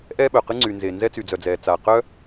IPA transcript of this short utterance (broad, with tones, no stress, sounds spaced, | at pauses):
ʔ ɛ˥ ɓ œ˩ q ɨ˥ ŋ͡ǀ y˩ n z e˩ n z ɛ˥ t͡s y˩ d͡z œ˩ d͡z ɛː˩ t͡s aː˩ q œ˥